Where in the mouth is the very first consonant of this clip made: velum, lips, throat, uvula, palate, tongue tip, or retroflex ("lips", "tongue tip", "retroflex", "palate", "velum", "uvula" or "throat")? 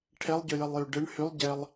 retroflex